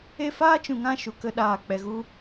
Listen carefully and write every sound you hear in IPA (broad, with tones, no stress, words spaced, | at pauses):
e˦ faː˦t͡ʃũ˨ŋã˧ ʃu˨kə˧ ɗaː˨ k͡pɛ˨ɣu˧